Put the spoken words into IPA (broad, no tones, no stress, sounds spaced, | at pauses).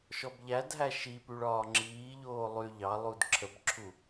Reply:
ʃ ɔ b ʎ æ d ɦ æ ʃ i p y ɭ ɒː ŋ͡ǁ iː ʎ oː lˠ y ʎ ɑ lˠ u d ǁʰ ə b ǁʰ u